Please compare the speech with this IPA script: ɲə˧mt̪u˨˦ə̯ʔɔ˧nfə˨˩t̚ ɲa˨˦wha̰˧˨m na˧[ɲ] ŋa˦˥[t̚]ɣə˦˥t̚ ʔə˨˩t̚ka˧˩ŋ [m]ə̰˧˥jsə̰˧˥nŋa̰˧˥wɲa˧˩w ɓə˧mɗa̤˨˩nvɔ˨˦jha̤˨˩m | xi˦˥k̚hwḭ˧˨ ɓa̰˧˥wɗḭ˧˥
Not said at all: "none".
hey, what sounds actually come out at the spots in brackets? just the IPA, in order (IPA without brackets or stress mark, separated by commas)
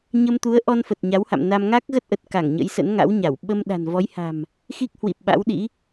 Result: m, k̚, ɲ